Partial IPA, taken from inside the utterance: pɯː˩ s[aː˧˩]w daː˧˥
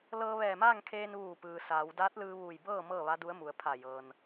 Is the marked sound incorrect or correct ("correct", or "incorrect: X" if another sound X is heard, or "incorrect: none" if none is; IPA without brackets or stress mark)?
incorrect: aː˩˧